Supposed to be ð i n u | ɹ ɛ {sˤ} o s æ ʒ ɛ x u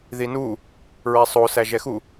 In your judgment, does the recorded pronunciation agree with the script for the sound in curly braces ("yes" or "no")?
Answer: yes